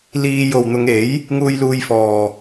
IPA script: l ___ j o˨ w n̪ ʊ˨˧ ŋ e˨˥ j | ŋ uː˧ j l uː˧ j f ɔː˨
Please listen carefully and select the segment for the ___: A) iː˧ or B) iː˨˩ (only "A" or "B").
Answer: A